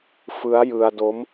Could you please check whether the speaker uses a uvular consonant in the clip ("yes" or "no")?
no